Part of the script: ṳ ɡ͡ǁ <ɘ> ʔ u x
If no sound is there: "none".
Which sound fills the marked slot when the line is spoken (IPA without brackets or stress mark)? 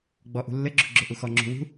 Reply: ø